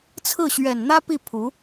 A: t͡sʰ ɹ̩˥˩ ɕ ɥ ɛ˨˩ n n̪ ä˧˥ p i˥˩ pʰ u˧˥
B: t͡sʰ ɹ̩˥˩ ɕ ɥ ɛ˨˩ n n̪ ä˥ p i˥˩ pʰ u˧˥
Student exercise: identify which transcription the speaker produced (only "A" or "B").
B